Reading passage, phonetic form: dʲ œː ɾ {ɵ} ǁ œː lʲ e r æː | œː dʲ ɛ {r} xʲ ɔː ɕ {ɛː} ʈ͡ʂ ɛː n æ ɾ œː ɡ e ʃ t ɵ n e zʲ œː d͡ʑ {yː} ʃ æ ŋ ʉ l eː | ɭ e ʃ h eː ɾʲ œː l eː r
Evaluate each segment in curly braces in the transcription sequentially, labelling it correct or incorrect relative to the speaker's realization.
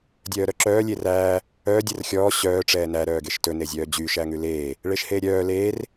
incorrect: œ, correct, incorrect: œː, correct

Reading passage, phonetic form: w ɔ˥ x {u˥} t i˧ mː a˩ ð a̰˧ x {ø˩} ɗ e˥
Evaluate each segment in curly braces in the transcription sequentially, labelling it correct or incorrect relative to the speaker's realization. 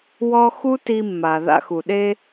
correct, incorrect: u˩

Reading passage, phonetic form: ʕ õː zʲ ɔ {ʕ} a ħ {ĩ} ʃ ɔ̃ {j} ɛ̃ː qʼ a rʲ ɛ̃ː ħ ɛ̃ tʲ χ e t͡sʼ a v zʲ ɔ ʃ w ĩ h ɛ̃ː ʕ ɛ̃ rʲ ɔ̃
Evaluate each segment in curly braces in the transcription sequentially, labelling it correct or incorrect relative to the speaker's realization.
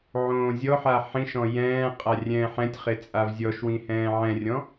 incorrect: ħ, correct, correct

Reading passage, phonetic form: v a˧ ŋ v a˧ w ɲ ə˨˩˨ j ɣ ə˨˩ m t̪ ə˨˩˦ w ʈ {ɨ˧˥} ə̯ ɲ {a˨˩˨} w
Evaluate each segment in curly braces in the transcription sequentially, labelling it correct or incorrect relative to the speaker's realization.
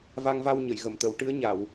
correct, correct

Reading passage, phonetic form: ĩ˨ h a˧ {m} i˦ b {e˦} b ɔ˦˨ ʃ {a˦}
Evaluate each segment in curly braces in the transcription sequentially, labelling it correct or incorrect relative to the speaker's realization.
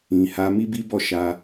correct, incorrect: i˦, incorrect: a˧

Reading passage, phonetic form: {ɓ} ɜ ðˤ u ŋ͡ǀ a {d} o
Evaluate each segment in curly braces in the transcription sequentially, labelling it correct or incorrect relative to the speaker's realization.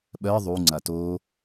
correct, incorrect: t

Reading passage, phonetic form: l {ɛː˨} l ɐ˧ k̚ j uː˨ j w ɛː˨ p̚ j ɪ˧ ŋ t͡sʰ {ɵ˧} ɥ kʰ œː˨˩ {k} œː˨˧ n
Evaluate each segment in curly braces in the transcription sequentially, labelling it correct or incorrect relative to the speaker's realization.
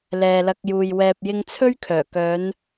correct, incorrect: ɵ˥, correct

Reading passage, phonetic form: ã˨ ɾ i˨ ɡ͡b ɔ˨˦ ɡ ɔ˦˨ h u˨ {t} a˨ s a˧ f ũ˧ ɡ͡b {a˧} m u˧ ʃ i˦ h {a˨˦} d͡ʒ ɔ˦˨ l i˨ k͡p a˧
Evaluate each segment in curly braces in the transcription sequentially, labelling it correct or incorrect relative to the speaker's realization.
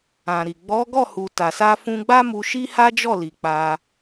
correct, incorrect: a˦, incorrect: a˦

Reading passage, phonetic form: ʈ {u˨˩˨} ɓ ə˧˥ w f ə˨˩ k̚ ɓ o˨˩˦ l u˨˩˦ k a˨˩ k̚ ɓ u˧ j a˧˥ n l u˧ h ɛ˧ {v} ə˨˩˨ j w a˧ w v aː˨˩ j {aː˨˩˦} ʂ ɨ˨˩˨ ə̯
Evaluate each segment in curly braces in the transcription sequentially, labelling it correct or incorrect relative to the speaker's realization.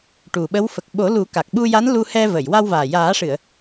incorrect: u˨˩, correct, correct

